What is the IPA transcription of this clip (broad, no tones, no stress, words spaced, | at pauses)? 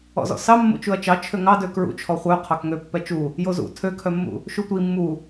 ɔ̰zɔ̰sɑ mːṵt͡ʃuɐ̯t͡ʃɑ t͡ʃʰøŋɑ døkɹṵt͡ʃʰɔ χʷœ qʰɑkŋø pːɛt͡ʃu | jozṵ tʰøkʰœmːṵ | ʃutʷi mːu